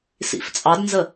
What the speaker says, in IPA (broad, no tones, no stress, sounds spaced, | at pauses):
s ḭ f t͡sʼ ɑ d n z ə